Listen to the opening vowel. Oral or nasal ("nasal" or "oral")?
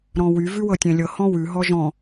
nasal